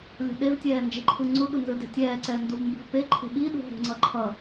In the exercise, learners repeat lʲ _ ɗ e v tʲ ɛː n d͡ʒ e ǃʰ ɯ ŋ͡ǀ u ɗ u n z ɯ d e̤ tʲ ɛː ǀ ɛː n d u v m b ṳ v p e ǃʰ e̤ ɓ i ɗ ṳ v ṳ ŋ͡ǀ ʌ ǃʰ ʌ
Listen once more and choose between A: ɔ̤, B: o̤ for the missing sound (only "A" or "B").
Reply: B